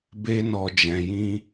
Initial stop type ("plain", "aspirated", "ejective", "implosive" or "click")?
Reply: plain